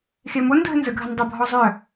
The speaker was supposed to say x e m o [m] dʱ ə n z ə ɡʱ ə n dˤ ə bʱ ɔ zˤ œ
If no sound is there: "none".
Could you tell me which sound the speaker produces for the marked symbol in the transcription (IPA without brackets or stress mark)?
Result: n